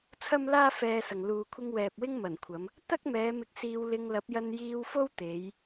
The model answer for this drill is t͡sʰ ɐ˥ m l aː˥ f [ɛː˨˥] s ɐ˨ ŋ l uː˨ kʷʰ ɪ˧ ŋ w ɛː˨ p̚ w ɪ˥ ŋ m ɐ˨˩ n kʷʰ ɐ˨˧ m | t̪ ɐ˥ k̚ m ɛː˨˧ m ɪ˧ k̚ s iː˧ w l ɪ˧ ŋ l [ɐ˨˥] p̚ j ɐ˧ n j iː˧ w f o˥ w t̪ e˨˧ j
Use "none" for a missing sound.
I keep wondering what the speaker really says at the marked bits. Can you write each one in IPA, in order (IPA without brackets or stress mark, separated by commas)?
ɛː˧, ɐ˨˥